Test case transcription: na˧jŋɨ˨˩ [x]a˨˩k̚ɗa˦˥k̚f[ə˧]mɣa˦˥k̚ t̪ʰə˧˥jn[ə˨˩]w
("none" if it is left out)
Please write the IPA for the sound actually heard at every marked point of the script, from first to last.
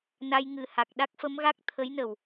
h, ə˧˥, ə˨˩

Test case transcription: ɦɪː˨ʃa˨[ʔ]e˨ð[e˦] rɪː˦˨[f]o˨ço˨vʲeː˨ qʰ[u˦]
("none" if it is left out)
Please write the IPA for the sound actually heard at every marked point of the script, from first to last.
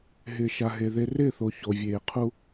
ɦ, e˦, θ, u˦

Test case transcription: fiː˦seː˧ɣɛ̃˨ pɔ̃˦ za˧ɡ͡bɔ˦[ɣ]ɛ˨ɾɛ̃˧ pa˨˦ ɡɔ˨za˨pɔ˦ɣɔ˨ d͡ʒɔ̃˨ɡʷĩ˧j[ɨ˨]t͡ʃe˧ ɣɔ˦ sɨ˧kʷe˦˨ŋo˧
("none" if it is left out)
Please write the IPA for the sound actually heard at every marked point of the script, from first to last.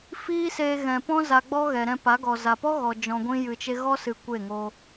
ɣ, ɨ˨

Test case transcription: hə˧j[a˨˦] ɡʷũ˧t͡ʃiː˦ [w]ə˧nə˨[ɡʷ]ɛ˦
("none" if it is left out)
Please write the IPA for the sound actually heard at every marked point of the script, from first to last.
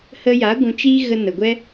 a˨˦, ɣ, ɡʷ

